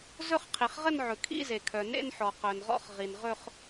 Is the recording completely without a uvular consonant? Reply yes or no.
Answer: no